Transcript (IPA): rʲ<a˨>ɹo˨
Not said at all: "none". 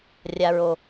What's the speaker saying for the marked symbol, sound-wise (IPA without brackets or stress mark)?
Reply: a˨